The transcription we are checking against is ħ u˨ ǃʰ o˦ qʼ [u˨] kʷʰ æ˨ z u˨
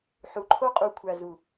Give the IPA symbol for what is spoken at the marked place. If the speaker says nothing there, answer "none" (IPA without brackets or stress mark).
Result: u˨